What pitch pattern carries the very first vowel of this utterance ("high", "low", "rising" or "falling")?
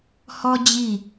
high